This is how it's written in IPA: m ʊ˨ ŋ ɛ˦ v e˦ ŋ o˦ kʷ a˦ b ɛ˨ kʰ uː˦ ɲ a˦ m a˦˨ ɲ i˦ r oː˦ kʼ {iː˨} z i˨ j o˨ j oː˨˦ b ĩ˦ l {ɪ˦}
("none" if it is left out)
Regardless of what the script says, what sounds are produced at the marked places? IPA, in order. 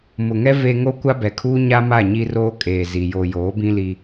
eː˨, i˦

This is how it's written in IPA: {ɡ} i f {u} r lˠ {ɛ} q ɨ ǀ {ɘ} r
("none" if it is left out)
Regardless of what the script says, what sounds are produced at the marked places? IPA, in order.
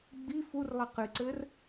ɡ͡b, u, ɛ, ɘ

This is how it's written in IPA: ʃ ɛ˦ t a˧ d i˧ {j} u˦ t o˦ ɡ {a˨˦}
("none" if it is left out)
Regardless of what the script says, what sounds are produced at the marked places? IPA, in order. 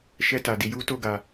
j, a˧

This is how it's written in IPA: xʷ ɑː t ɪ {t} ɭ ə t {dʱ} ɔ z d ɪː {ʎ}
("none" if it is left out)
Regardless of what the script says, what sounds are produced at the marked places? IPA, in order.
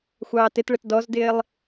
t, d, lˠ

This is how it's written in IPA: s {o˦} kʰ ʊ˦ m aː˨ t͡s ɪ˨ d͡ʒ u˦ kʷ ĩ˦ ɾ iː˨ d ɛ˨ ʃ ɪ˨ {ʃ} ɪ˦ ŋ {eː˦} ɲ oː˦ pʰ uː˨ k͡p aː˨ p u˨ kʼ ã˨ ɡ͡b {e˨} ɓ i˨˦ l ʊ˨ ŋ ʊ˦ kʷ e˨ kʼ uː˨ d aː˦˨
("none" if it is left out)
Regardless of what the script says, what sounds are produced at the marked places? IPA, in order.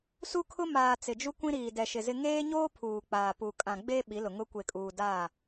u˦, z, eː˦, e˦

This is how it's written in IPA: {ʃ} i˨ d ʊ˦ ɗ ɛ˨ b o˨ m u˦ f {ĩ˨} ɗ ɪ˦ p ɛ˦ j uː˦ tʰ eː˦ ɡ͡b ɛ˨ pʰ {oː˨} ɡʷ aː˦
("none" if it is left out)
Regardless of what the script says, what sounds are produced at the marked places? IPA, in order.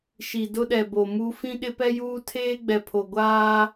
ʃ, ĩ˦, o˨

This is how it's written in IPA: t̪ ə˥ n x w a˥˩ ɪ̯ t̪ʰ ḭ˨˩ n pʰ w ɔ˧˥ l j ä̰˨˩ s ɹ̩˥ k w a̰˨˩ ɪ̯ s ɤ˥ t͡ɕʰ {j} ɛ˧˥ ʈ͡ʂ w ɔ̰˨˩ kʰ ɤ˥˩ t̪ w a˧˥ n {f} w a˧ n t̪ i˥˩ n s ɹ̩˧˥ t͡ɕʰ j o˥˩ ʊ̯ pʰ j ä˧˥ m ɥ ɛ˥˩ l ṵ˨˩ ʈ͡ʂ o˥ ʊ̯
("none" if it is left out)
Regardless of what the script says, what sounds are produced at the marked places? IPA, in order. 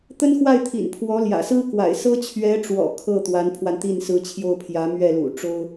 ɥ, pʰ

